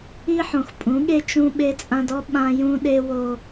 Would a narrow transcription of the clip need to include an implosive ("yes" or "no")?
yes